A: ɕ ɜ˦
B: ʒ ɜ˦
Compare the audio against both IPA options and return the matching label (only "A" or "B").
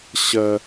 A